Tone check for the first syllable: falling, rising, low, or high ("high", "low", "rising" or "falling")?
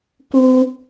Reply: high